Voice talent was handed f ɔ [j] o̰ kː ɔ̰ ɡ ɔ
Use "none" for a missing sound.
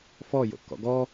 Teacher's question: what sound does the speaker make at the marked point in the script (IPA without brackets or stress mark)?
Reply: j